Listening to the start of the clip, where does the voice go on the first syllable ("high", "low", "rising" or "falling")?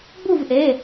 falling